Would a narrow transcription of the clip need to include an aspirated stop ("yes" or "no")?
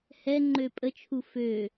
yes